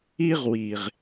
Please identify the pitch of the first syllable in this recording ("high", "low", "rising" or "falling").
high